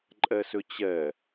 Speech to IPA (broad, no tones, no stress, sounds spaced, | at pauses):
ǃʼ ɛ s ʏ t͡ɕ ɛ